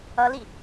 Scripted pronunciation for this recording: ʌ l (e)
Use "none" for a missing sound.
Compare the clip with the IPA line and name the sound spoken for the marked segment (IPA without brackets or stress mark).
i